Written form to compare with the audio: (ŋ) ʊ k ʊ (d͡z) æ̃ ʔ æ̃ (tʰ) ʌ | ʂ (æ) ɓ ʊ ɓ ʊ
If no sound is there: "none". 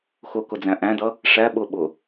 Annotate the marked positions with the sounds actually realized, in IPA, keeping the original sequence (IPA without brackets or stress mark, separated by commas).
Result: x, d͡z, d, æ